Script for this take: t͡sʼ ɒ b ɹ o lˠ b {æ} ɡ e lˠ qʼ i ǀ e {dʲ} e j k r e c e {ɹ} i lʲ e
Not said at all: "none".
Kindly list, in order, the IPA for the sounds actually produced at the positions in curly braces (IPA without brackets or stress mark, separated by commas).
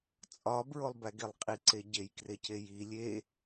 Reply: æ, ɟ, j